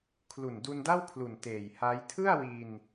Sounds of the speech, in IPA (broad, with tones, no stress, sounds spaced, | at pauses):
kʰ l u˨˩ n d u˧ n d a˥˩ w kʰ l u˨˩ n t eː˨˩ j h a˦˥ j tʰ ɯ˥˩ a̯ w i˧ n